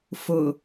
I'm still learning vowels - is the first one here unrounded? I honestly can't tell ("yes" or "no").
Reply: no